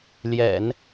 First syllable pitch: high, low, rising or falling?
low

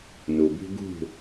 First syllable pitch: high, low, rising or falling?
low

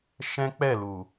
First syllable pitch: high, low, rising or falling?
high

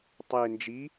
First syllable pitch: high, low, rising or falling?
low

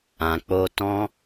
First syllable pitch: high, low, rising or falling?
low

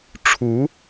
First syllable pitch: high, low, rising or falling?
rising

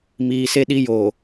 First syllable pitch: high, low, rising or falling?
low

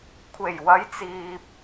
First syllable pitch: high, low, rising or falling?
low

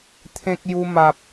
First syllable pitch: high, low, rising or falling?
high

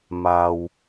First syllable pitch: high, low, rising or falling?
low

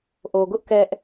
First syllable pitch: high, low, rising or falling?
low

